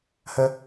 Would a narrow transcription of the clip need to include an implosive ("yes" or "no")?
no